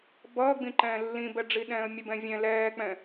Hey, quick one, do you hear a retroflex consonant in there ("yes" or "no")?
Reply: yes